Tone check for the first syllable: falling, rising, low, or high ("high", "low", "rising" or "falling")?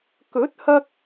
rising